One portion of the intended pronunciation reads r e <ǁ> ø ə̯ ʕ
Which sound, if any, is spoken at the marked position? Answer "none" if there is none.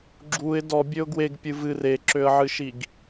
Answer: ǁ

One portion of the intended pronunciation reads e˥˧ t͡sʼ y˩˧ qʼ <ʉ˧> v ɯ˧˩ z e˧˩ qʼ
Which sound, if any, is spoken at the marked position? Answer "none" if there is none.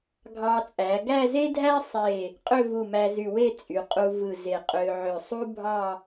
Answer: u˧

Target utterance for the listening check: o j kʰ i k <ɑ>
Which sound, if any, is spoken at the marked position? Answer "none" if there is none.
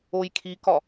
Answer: ɒ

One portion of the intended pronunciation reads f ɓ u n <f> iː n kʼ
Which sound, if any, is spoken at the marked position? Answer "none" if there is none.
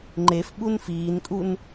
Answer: f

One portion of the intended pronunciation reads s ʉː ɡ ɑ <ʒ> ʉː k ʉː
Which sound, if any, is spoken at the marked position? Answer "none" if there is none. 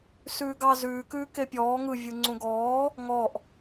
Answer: z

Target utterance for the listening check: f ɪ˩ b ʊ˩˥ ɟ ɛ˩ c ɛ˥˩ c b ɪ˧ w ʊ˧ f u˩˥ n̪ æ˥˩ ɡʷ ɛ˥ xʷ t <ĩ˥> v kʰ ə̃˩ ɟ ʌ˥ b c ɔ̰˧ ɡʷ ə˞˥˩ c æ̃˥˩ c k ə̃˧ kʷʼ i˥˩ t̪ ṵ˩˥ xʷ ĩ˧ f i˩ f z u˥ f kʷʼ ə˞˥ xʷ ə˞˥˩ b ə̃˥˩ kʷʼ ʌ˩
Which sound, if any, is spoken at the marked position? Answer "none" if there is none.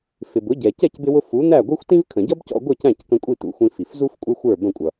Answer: ĩ˥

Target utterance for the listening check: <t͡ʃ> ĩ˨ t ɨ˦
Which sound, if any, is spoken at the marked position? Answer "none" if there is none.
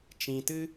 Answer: t͡ʃ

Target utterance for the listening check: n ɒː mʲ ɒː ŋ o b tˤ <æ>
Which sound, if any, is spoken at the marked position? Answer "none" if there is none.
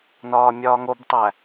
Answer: æ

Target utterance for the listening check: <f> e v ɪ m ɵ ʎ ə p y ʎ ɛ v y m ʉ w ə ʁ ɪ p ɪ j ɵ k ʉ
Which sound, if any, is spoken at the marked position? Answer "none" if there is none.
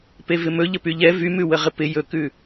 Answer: p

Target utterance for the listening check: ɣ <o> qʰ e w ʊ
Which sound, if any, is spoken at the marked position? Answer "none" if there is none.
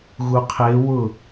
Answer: u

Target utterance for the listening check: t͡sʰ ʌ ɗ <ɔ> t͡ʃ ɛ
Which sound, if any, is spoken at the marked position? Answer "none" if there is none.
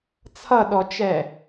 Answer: ɔ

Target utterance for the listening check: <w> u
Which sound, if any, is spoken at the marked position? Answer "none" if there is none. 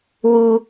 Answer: w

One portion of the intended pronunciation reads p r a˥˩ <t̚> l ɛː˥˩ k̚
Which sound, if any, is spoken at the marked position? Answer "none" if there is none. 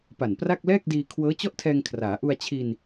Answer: k̚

